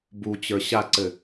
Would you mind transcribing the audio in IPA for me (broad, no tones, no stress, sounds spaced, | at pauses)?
b u t͡ɕ ə˞ ɕ a ǀ ɘ